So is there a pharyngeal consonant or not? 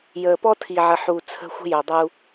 yes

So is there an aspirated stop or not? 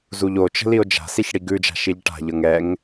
no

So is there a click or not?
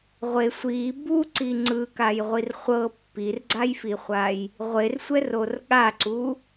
yes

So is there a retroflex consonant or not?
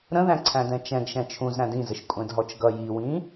no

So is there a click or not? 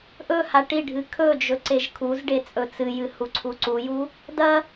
yes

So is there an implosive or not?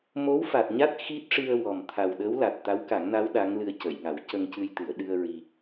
yes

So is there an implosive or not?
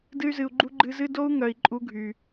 no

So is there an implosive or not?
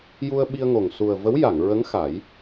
yes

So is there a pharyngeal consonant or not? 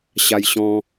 no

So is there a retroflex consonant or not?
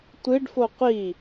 yes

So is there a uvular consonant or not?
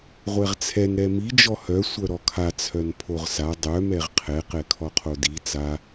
yes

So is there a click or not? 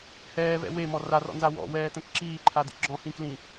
yes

